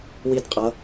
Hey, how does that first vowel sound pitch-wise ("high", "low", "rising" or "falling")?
falling